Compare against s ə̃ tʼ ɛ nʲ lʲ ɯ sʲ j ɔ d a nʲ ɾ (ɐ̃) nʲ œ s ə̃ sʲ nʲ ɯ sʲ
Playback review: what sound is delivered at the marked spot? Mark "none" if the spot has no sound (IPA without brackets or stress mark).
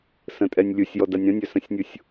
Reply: ɐ̃